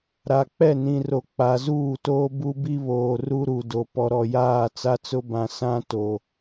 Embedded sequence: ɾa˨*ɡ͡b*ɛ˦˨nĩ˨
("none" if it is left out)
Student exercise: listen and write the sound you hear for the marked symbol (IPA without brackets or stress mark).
k͡p